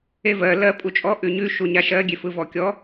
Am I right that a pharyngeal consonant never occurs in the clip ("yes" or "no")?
yes